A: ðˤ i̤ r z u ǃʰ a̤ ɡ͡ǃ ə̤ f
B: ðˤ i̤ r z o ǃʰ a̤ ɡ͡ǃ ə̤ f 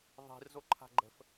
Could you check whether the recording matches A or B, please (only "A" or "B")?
B